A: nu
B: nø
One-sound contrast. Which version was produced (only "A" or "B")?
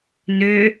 B